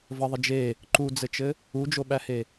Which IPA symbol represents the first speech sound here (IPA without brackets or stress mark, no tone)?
v